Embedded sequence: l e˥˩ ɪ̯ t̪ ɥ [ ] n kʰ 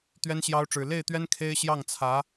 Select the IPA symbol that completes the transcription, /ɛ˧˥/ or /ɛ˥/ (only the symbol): ɛ˥